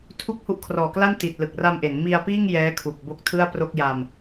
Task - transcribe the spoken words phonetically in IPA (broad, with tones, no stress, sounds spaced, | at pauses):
tʰ u˦˥ k̚ h u˦˥ ʔ kʰ r ɔː˨˩ k l a˥˩ n t i˨˩ t̚ l ɯ˨˩ k̚ r a˧ m ʔ e˩˦ n m i˧ a̯ p iː˥˩ ŋ j ɛː˦˥ kʰ u˨˩ k̚ b o˦˥ k̚ tʰ ɯ˥˩ a̯ p r o˥˩ k̚ j a˧ m